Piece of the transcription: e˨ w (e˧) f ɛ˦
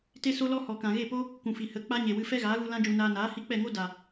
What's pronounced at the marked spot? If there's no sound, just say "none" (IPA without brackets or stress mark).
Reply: ɨ˧